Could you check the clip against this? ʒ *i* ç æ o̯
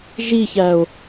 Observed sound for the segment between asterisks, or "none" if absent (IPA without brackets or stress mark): i